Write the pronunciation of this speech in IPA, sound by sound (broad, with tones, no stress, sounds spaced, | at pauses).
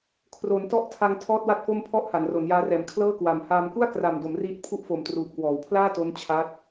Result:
kʰ r o˩˦ n t ɔ˥˩ ʔ tʰ a˧ ŋ tʰ ɔː˥˩ t̚ w a˥˩ t̚ f o˥˩ m pʰ ɔ˥˩ ʔ h a˩˦ n r o˩˦ n j aː˦˥ r ɛː˨˩ m kʰ l ɤː˥˩ k w a˩˦ m h aː˧ m k u˥˩ a̯ k r a˨˩ m d o˩˦ m r iː˦˥ t̚ pʰ u˥˩ ʔ f o˨˩ m t r uː˨˩ p̚ k w ɔː˩˦ w pʰ l aː˥˩ t o˦˥ n t͡ɕʰ a˦˥ t̚